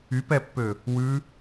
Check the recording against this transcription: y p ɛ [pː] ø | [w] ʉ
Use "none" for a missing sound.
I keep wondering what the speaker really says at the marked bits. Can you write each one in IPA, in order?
pː, w

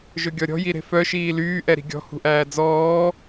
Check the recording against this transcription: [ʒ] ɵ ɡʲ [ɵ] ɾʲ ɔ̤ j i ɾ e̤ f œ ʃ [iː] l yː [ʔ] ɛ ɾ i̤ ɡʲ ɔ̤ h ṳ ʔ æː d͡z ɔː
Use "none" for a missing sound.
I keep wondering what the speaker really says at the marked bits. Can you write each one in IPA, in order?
ʒ, ɔ, iː, ʔ

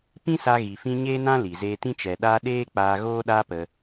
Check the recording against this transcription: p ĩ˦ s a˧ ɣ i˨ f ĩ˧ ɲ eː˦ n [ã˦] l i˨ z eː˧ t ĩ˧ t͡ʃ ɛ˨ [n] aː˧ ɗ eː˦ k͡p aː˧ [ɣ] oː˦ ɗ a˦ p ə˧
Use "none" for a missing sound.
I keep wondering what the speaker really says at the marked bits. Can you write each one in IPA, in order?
ã˦, ɗ, ɣ

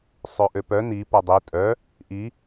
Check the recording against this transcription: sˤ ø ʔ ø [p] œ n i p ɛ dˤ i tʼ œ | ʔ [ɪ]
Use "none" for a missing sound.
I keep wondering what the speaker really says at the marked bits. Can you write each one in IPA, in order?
p, i

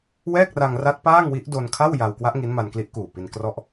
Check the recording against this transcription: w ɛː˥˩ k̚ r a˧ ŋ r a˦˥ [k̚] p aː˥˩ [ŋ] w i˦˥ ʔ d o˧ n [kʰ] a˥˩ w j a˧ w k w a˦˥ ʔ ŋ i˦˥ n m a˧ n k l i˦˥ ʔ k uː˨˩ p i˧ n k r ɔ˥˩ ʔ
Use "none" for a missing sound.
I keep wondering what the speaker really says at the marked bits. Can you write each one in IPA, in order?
t̚, ŋ, kʰ

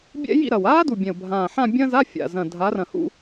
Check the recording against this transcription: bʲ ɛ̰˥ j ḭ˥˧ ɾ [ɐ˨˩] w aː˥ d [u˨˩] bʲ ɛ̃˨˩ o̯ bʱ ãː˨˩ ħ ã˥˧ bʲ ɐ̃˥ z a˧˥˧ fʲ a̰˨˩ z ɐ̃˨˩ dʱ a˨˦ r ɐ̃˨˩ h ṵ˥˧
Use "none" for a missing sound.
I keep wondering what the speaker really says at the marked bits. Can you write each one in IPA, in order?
ɐ˨˩, u˨˩

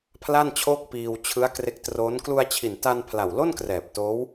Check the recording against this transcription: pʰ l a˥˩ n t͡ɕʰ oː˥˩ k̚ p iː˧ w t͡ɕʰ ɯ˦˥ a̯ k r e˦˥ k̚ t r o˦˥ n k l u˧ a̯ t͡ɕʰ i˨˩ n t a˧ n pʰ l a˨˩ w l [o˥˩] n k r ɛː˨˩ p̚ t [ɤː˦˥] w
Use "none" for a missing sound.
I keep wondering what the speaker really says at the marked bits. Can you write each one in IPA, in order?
o˥˩, oː˦˥

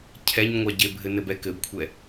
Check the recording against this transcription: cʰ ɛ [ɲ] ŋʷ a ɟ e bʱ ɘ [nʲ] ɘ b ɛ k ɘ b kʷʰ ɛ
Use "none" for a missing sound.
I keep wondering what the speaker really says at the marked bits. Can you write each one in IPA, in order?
ɲ, n

